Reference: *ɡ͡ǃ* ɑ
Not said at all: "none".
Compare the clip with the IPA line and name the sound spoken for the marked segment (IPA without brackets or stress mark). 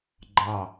ɡ͡ǃ